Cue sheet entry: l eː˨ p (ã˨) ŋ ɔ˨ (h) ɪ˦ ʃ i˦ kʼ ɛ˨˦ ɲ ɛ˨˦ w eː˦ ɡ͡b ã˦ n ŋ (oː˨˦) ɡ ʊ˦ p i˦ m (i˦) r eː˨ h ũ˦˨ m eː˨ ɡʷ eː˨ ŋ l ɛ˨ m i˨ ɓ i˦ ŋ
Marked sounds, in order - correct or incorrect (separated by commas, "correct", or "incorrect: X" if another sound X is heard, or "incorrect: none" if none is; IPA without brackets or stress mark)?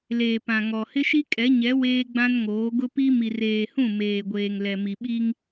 correct, correct, correct, incorrect: i˨